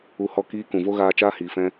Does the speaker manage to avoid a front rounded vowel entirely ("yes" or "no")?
yes